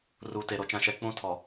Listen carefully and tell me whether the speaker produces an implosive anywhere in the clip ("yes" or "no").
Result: no